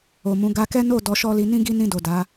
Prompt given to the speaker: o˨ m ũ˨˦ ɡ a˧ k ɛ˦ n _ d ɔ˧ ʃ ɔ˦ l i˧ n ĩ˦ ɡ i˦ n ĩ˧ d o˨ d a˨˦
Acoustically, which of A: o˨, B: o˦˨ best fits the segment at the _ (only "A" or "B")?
B